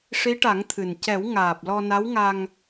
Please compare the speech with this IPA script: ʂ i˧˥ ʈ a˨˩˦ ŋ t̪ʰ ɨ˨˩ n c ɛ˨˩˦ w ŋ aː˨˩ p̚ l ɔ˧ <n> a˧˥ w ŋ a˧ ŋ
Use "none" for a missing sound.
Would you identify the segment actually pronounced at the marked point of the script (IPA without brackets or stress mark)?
n